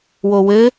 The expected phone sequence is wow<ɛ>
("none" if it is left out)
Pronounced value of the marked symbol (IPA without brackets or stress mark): ɘ